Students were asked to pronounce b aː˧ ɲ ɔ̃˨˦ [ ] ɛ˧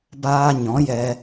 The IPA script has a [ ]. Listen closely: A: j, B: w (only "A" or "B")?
A